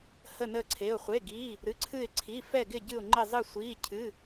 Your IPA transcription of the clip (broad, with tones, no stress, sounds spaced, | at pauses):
h ə˧˩ n əː˧˩ ǀʰ e˩˧˩ ʊ̯ χʷ e˩˧˩ ɡ iː˩˧˩ | ɾ ɨ˩˧˩ ǀʰ ɨ˧˩ ɪ̯ ǀʰ i˩˧˩ f ɛ˧˩ ɡ ɪ˧˩ ɟ ɨ˧˩ ʊ̯ ŋ͡ǃ ɪ˧˩ zˤ ɨ˧˩ sʷ iː˩˧˩ cʰ ɨ˩˧˩